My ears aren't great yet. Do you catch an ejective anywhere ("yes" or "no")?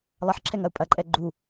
yes